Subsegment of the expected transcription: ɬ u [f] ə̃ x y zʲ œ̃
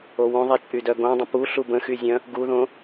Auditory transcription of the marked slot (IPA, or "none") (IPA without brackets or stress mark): b